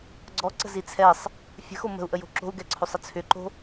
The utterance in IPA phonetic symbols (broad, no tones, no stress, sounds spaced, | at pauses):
ɡ͡ǀ ɔ ǀ ə̤ z i t͡sʰ ɛ sˤ | fʲ ə̤ x o m ə̤ u̯ ʔ ə j o̤ ǁ o̤ u̯ ɡ ɛ ǀʰ o sˤ ə t͡sʰ ʏ ǃ o̤